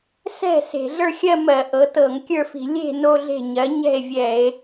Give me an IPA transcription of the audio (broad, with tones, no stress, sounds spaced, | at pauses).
s ɛ̤˥˩ s e̤˧˩˧ ɮ ə˞˥˧ xʲ ɜ˥˧ m ɜ˧˩˧ ʔ ɤ˩˧ t ɤ˧˩˧ ŋ kʲ ə˞˥˩ f i̤˧˩˧ lʲ e̤˥˩ n o˥˧ ɮ e̤˥˩ ɲ ɜ˩˥ ɲ ɛ̤˥˩ e̯ vʲ ɛ˧˩˧ e̯